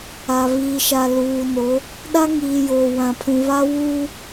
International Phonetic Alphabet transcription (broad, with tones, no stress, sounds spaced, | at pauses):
a˨ β iː˨ ʃ a˨ l uː˨ n o˨˦ | ɗ a˦ ŋ iː˨ j oː˨ w ã˨ pʰ ũ˨ β a˦ w uː˦